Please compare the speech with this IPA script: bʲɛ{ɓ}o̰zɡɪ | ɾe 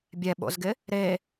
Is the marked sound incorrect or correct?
correct